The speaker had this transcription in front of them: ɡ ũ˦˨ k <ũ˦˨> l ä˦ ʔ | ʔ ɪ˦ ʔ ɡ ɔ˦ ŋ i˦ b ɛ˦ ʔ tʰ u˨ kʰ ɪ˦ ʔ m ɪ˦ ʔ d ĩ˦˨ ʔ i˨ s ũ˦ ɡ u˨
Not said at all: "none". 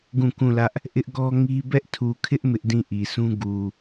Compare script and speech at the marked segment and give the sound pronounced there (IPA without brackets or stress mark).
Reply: ũ˦˨